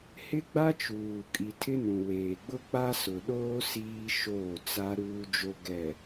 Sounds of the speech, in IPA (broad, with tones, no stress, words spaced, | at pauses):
hɪ˦ɡ͡ba˦t͡ʃuː˨ kʼi˨tʰɪ˦nũ˨weː˨ ɡ͡bʊ˦k͡pa˦sʊ˨ɗoː˦ siː˦ ʃoː˦˨t͡sa˦ ɾuː˦d͡ʒo˦ ɡɛ˨